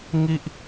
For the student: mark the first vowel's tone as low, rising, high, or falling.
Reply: high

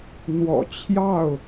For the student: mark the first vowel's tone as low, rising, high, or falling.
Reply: low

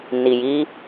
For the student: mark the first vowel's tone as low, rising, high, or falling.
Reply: low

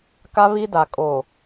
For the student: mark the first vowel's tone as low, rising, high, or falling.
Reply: high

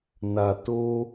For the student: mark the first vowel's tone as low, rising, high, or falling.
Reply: low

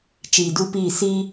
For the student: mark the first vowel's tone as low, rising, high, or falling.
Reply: low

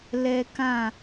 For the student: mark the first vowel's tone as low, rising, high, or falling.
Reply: high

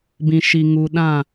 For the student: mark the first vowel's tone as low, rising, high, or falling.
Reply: low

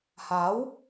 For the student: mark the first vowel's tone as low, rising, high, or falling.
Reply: rising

